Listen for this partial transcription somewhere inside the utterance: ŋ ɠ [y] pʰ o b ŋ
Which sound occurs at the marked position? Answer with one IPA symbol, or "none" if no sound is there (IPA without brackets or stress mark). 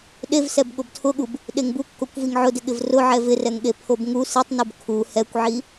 e